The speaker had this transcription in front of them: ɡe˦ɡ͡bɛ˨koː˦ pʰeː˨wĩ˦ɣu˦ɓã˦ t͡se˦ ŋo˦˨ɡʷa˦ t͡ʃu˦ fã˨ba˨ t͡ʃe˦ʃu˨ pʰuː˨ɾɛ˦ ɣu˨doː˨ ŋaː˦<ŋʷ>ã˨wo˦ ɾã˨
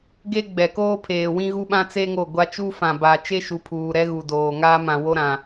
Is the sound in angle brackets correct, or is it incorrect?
incorrect: m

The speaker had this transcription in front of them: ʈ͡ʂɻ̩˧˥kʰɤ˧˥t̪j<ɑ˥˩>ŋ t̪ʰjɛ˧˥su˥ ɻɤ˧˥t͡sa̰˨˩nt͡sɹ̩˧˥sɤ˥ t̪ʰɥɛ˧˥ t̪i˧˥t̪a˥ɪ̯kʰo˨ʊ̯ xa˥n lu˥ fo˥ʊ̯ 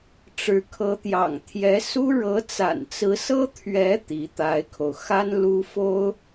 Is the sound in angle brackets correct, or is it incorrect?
incorrect: ɑ̰˨˩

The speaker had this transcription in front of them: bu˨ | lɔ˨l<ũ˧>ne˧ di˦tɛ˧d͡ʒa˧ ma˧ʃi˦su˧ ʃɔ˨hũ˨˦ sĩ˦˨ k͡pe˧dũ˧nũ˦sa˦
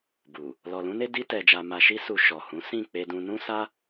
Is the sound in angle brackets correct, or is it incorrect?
correct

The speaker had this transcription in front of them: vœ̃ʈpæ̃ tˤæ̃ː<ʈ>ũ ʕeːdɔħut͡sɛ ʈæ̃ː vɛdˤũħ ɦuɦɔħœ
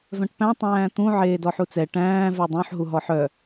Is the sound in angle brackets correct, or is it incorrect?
incorrect: t̪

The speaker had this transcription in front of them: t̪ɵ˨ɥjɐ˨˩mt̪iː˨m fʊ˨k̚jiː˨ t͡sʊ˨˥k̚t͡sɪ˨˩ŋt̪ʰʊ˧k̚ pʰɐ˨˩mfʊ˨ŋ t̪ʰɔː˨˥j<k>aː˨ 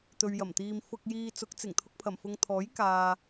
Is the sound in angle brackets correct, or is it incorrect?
correct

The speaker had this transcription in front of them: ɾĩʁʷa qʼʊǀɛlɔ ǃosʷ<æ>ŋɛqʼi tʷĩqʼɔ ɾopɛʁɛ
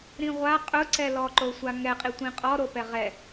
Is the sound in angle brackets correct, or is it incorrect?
incorrect: a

